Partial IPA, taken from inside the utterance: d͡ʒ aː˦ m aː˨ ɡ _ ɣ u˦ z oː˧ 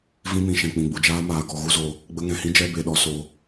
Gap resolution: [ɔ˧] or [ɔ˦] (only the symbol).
ɔ˧